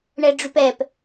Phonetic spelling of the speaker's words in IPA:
ɳ ɛ ɖ͡ʐ y p ɛ p

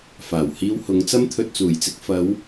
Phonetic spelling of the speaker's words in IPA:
f aː˨˩ w h iː˧ w h ʊ˨˧ ŋ t͡s ɐ˥ m t̪ʰ ɵ˧ t̚ t͡s uː˨˩ j t͡s ɪ˧ k̚ f ɐ˨˧ w

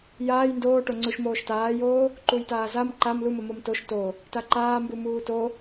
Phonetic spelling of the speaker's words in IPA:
j aː j n d oː ʈ o ŋ͡ǀ u ʃ m oː ʃ t aː j oː | ǃ u j t aː z a m ǃ a m l u m ə m o m t o ʃ t o | t a ǃ aː m b u m uː t o

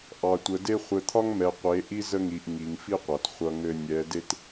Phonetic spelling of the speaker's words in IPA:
ʔ ɑ˨ tʷ ə˨ d e˦ χʷ ɘ˨ t̪ʰ ɒ˦ ŋ m ɛ˨ qʷ e˨˦ ʔ i˦ z ə˦ ŋ i˨ ʔ ŋ i˨ ŋ f i˦ qʷ a˨ t χʷ ʌ˦ ŋ ɘ˦ nʲ ɛ˨˦ d e˦ t

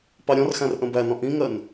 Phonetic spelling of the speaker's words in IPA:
p ɑ ɾʲ ɔ̃ r x æ̃ r ʔ ə̃ b æ n ɔ̃ ʔ ĩ ŋ ɜ n

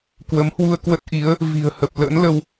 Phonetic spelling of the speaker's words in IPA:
k w ə˨˦ m h w u˧ ə̯ k w ə˦˥ t̚ ʔ i˨˦ ə̯ | v i̤˨˩ ə̯ h ə˨˩ p̚ l ə̰ː˧˥ n l ə˧ w

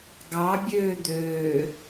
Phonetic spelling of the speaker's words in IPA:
ɡ ɑ bʲ øː d̪ øː

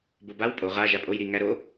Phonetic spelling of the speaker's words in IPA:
b o b a w pʼ o ʁ a ʒ a pʼ o j ɾ i ŋ æ ɾ o

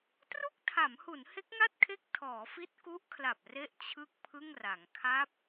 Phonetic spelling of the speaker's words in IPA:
t r u˥˩ k̚ tʰ a˩˦ m h u˩˦ n h e˦˥ k̚ ŋ a˥˩ t̚ kʰ e˦˥ k̚ tʰ ɔː˩˦ f i˦˥ t̚ k u˦˥ ʔ kʰ l a˨˩ p̚ r e˦˥ ʔ t͡ɕʰ ɯ˥˩ k̚ pʰ ɯ˥˩ ŋ r a˩˦ ŋ kʰ a˦˥ p̚

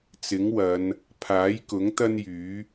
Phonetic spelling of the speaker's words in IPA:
t͡s ɪ˨˥ ŋ w ɐ˨˧ n | pʰ aː˨˥ j k ʊ˨˥ ŋ t̪ ɐ˥ n j yː˨˥

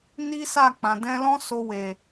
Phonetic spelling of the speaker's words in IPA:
n i˦ s a˦˨ k͡p ã˨ d ɛ̃˧ l ɔ̃˦ s o˧ w e˨

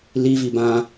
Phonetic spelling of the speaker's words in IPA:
l i v i b ã

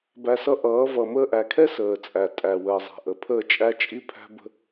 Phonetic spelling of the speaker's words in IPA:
b æ˧ s ʌ˦ ʔ ʌː˨˦ v ʌ˨ m əː˧ ʔ æ˨ kʰ ɛ˦ s əː˨ t͡sʼ æ˨ tʼ æ˨ w əː˨ zˤ æ̤˨ ʔ ə˨ pʰ əː˦˨ t͡ʃʼ æ˦ t͡ʃʼ i˦ pʰ æ̤˦ b ə̤˦

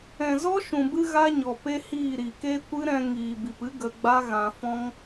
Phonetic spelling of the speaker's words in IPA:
ɛ̃˨ z ɔ˦ ʃ ũ˨ b ɨ˧ ɣ a˦ ɲ ɔ˨ p e˦ h iː˦˨ ɾ i˨ k e˦ kʷ ɨ˦ ɾ ɛ̃˧ ŋ iː˨ b i˨ p ɨ˦ ɡ ə˧ ɡ͡b a˦ ɣ ã˧ f ɔ̃˦ ŋ

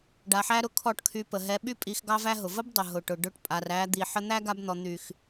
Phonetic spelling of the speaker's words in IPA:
ɖ a˨ ħ æ˦ ɾ ʊ˧ kʰ ɔ˦˨ ʈ kʰ y˧ p ə˨ ɦ ɛ˧ ɓ y˦ pʼ i˧ x ɡ ɑ˦ v æ˦ ɦ ʊ˨ v ə˦ b dˤ ʊ˨ ɦ ʊ˨ ʈ ʊ˨ ɖ ʊ˧ ʈ pʼ a˨ r æ˧ d̪ i˨ ħ ə˧ n̪ æ˦ ɡ a˧ b n̪ ɔ˨ n̪ y˨ x

